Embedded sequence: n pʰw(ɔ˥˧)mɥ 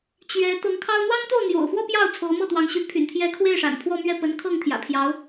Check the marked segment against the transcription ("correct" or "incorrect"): correct